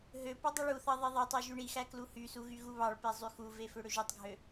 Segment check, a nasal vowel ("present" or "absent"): absent